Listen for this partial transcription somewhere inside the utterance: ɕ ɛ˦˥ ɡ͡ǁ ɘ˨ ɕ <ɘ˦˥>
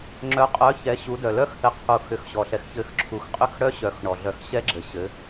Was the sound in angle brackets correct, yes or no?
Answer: no